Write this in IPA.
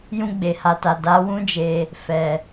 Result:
j ũ˧ ɡ͡b e˨ h a˨ t a˨ d a˨˦ w ũ˦ d͡ʒ e˧ | f ɛ˨

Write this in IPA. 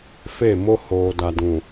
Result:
f e˦˨ m o˦ h oː˨ d a˨ d ũ˨

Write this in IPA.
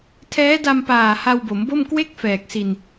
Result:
tʰ ɛː˦˥ d a˧ m p aː˨˩ h a˧ w b o˩˦ m b o˥˩ m k w e˥˩ k̚ f ɛː˨˩ k̚ s i˧ n

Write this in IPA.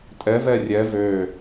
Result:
tʼ ɛ v ɛ rʲ ɛ v ø

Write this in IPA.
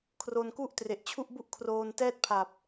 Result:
kʰ r o˧ n k u˥˩ ʔ t r e˨˩ ʔ t͡ɕʰ u˥˩ ʔ b u˥˩ ʔ kʰ r oː˧ n t ɛː˥˩ t̚ pʰ a˨˩ p̚

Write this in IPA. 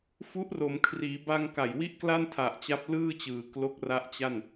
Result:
f u˦˥ ʔ r o˩˦ m kʰ r iː˩˦ b a˧ ŋ k a˨˩ j w i˥˩ ʔ k l a˥˩ n tʰ a˨˩ ʔ t͡ɕ a˦˥ p̚ l ɯː˥˩ t͡ɕ ɯː˩˦ k l o˦˥ k̚ r a˦˥ ʔ t͡ɕ a˥˩ n

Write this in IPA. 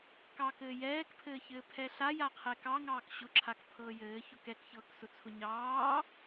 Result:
k ɑ k ɘː j ɛː k pʰ ɘː ç ɘː pʰ ɛ ɬ a j a qʰ ɛ k ɑ ŋ ɑː k ɕ ʊ ǁʰ a k pʰ ɤː j ɘː ç ʊ k ɛ k ç ɤː k s ʊ t͡sʰ ʊ ɲ ɑː

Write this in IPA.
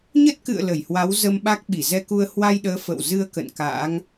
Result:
ɲ ə˦˥ t̚ k ɨ̰˧˨ ə̯ l ə˧˩ j h w a˨˦ w z ə˧ m ɓ a˦˥ k̚ ɓ i˧˩ z ɛ˧ k u˧ ə̯ h w a˧ j ɗ əː˨˦ f ə̰˧˨ w z ɨ˧ ə̯ k ə̰˧˨ n k a̰ː˧˥ ŋ

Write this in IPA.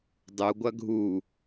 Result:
dˤ u ɡʷ ɐ ɡʱ u

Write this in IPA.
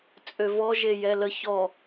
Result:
t͡sʼ ø v ɔ ʒ e j ɛ l ə ç ɔ

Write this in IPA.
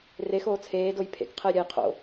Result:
r e x oː t͡sʰ eː d o j pʰ ḛ k qʰ ɘ j ɾʲ ɛ j qʰ o̰

